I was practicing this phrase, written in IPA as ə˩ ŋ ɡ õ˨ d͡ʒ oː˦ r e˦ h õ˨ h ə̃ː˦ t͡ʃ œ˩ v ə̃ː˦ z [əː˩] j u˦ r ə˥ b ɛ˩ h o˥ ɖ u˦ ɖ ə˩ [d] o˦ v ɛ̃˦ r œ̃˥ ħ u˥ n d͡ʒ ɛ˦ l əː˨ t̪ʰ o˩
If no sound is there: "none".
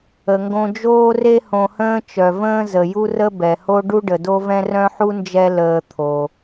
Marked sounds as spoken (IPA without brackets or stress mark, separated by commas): ə˩, d